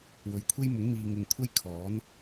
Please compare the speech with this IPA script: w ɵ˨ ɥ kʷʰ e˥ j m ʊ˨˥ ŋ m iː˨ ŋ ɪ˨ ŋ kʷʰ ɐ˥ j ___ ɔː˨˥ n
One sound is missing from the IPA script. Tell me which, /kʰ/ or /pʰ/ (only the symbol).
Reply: kʰ